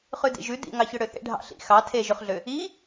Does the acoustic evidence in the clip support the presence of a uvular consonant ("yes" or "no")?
yes